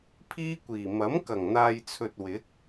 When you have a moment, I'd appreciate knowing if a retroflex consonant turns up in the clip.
no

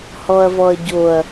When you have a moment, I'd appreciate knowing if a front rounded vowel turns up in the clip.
no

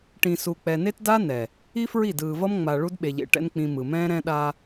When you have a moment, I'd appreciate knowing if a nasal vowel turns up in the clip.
yes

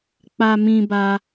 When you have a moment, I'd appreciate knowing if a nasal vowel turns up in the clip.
yes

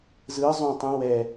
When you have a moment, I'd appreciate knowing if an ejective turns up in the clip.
no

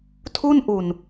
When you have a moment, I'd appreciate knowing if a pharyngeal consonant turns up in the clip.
no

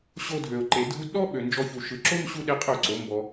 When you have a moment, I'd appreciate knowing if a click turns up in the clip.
yes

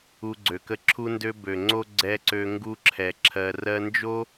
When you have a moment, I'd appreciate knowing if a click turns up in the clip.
yes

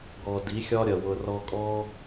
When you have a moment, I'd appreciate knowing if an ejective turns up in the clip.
yes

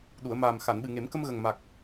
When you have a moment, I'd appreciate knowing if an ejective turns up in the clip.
no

